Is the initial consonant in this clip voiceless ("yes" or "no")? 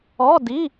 no